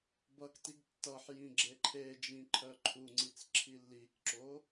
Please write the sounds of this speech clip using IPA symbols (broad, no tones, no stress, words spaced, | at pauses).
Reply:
bʌktiɡ tːʌħjĩ ɡ͡ǁeǃʰed͡ʒĩ ǃʰœǃʰuŋ͡ǀit͡s ǁʰilːikǁo